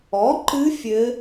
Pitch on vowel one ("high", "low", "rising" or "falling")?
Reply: rising